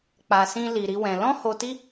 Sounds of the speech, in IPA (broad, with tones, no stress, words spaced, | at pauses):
k͡pa˧sĩ˦ li˧ɾi˦wɛ̃˧ lɔ̃˦ho˧ti˦